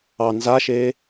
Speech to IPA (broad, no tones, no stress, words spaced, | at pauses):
ɑ nzaʃeː